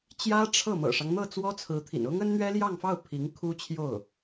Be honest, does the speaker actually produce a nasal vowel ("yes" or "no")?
no